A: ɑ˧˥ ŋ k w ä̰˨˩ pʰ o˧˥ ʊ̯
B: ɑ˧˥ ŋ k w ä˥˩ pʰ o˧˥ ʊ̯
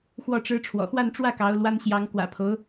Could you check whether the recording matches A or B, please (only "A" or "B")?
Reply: A